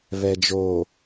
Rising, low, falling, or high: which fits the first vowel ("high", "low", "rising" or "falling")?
low